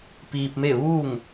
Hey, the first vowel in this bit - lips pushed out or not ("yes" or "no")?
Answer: no